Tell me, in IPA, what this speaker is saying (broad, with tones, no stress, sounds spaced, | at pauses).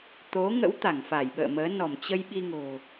t̪ o˨˦ ŋ ə̰˧˥ w t̪ a˧˩ ŋ f a˧˩ j ɓ ə̰ː˧˨ m əː˨˦ n ɔ˧˩ m t͡ɕ ə˧ j ɓ i˧ ŋ o̤˨˩